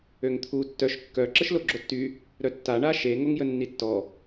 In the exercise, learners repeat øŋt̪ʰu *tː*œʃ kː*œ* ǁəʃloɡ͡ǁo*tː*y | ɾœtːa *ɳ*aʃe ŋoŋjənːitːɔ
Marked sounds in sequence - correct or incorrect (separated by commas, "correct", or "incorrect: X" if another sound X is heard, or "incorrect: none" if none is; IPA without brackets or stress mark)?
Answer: correct, correct, correct, correct